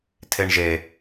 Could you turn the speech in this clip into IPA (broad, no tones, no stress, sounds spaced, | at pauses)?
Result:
tʰ e ɳ ʒ e